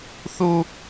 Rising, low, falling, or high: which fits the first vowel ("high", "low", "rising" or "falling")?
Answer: high